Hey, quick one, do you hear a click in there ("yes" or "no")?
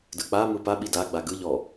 no